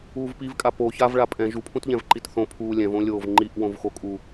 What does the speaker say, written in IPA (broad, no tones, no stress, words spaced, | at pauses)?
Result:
uːvpivkʼa po çavɭa pʼɛ̃ ʒupʰũtʎɛ̃vǃit θõ pʰuːlʲɛ̃võlʲoːv ŋ͡ǃiʔwõvxokʼu